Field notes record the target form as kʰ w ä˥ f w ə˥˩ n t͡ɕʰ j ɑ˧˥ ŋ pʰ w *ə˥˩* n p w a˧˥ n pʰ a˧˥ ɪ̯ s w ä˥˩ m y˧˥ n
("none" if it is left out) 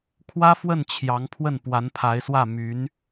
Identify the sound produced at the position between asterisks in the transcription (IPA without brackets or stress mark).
ə˥˩